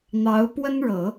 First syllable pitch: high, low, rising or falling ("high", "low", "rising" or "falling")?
rising